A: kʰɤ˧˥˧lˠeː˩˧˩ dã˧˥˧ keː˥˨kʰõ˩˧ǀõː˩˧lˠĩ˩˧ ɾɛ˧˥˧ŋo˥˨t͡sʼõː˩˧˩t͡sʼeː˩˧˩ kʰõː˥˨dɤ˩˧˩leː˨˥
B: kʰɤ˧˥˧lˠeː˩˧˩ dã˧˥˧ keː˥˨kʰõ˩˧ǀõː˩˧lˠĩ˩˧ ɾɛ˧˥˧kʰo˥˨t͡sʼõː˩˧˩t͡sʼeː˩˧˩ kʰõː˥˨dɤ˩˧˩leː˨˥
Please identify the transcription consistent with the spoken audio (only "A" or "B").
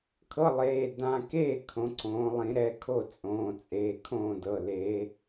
B